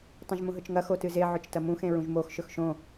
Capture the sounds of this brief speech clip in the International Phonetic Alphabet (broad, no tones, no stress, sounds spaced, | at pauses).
tˤ ɐ̃ ʒ m ũ ɦ ɵ t͡ʃ ŋ ɐ x o t ɨ z e ʕ ɵ t͡ʃ t ɐ m ũ x ẽ ɹ ũ ʒ m o x ʃ ɵ x ʃ õ